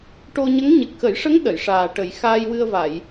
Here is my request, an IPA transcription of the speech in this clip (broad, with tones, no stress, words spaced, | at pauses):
ʈo˧ɲə˧˥ŋ ɲɨ˨˩k̚xə˨˩˦jʂə˧˥ŋ ɗə˨˩˨jʂaː˨˩ʈə˨˩˦j xaː˧jwɨ˧ə̯va˨˩˨j